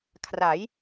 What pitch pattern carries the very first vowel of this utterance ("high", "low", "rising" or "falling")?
rising